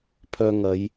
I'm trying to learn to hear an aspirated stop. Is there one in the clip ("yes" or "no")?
yes